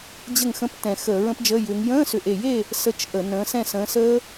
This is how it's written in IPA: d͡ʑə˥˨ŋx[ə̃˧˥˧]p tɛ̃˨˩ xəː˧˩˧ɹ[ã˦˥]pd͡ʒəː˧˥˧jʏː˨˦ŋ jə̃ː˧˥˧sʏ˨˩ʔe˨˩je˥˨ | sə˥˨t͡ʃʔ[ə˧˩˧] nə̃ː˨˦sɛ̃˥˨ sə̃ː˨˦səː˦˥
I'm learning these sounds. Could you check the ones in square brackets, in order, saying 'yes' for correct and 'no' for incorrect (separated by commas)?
yes, no, yes